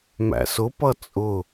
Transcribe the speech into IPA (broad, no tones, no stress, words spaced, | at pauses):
mæ̰sʊpʌ t͡sʼʊ